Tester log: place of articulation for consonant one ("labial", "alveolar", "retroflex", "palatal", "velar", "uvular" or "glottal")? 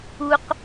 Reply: uvular